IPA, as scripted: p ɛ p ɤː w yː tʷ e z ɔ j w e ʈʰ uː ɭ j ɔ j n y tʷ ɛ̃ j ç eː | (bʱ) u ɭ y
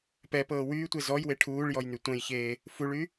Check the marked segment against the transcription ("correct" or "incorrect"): incorrect